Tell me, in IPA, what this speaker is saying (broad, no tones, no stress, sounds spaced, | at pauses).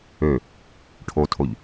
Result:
ø | ʈʰ o tʰ o ʎ